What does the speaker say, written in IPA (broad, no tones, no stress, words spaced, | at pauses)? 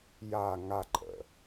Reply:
ja ŋaǃʼə̰